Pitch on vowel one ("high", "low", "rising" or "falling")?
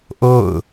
falling